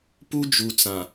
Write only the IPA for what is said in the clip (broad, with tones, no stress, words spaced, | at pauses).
pu˦ d͡ʒu˨t͡sã˨